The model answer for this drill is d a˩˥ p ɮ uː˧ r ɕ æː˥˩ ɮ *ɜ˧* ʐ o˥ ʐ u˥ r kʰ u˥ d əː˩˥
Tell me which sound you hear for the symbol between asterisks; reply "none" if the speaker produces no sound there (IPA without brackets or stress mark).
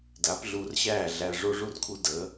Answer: æ˧